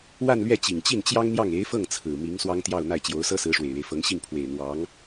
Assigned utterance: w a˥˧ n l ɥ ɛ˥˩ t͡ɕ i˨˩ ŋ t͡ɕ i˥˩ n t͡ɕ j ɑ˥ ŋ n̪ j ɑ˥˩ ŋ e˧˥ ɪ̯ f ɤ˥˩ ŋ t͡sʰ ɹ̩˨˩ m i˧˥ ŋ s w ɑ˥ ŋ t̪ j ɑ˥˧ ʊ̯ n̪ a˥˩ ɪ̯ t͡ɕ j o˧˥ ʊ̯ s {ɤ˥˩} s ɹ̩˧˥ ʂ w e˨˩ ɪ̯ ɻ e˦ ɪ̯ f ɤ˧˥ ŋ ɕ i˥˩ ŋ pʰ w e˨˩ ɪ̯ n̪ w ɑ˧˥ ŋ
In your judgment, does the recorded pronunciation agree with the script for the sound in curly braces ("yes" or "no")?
no